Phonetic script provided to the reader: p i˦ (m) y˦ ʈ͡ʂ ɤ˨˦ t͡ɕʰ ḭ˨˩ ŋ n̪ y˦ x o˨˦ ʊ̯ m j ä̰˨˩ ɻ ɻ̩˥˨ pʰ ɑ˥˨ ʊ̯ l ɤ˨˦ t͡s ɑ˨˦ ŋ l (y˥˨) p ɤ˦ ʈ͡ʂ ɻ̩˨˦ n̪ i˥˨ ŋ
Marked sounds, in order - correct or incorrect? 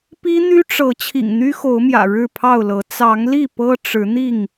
incorrect: n̪, incorrect: i˥˨

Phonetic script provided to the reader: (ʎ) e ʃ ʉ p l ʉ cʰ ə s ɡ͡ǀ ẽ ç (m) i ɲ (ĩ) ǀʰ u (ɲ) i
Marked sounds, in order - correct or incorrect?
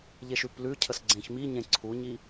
correct, correct, incorrect: ẽ, correct

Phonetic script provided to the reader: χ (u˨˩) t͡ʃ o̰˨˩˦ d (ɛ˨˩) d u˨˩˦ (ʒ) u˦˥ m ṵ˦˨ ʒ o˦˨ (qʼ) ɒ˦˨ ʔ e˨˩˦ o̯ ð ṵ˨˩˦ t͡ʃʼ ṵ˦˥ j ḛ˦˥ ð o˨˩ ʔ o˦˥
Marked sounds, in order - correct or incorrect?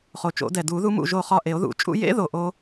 incorrect: o˨˩, correct, incorrect: ð, incorrect: χ

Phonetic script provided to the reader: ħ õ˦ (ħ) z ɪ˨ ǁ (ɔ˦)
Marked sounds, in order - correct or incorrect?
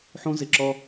incorrect: none, correct

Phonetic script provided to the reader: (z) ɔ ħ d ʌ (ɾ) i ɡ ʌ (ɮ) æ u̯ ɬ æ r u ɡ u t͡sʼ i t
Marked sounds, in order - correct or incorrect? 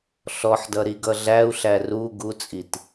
incorrect: ɬ, correct, correct

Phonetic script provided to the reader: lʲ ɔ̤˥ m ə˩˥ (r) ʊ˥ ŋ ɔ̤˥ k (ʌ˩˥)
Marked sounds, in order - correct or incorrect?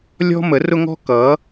correct, correct

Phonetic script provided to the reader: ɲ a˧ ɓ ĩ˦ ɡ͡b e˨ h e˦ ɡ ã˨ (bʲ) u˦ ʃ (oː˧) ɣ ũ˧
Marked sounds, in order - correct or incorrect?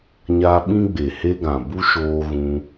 incorrect: b, correct

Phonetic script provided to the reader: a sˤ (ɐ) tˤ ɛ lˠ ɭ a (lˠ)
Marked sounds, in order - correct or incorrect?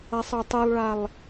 correct, correct

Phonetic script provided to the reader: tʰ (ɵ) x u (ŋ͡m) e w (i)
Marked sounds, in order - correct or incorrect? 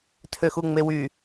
incorrect: ø, correct, incorrect: y

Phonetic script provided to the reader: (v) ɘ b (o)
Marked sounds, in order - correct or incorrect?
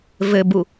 correct, incorrect: u

